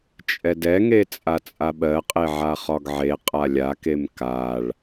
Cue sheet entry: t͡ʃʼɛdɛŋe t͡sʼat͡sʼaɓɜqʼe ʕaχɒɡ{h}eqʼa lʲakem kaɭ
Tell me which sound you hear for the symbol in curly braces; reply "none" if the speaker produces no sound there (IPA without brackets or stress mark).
ʕ